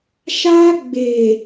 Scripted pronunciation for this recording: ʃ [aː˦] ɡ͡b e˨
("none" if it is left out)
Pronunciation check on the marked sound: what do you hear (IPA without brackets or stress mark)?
aː˦